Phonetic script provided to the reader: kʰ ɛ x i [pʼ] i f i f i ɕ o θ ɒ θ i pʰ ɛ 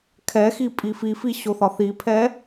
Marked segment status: correct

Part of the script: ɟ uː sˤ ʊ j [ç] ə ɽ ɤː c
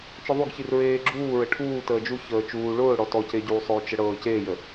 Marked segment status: incorrect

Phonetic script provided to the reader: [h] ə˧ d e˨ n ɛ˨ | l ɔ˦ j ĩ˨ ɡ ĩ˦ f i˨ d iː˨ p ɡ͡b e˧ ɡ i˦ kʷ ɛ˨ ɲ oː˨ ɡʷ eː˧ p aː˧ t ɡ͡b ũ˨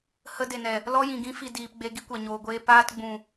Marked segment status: correct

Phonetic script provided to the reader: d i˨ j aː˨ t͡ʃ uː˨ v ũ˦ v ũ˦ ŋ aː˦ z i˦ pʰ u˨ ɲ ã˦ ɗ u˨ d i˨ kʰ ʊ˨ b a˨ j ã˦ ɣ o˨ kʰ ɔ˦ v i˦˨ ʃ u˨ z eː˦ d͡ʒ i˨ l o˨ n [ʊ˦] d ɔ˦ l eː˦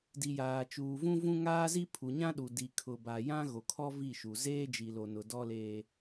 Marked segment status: incorrect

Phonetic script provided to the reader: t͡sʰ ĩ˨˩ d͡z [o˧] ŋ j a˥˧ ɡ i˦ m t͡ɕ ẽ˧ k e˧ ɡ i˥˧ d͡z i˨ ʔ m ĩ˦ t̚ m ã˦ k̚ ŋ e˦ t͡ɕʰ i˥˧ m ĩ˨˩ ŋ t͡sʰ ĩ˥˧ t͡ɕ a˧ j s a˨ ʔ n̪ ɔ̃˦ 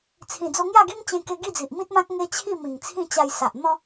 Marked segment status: correct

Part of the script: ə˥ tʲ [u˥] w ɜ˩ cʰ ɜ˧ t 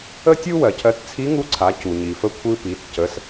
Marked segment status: correct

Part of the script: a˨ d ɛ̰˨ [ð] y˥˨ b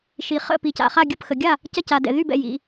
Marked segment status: correct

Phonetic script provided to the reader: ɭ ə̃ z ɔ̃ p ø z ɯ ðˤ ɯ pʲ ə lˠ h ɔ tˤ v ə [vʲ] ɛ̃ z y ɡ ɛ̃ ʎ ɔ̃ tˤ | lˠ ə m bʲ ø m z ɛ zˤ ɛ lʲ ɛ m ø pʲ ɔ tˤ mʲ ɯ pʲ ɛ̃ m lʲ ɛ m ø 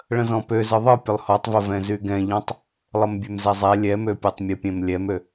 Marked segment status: incorrect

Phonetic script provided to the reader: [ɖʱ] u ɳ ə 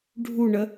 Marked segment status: correct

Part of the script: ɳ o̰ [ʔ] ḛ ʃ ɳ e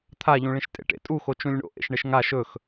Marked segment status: correct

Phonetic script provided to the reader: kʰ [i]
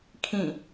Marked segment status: incorrect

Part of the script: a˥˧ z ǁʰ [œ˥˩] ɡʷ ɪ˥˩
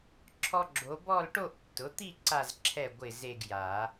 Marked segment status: incorrect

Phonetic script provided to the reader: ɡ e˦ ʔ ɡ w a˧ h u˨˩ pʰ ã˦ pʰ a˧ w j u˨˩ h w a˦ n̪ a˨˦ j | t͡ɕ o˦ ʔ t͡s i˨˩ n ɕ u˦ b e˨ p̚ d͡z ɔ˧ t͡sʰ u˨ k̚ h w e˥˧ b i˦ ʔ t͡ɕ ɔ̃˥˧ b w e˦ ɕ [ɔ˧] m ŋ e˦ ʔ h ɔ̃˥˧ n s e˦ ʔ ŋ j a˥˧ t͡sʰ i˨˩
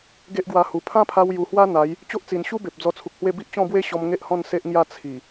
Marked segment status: correct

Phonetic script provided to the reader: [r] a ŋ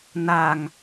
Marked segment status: incorrect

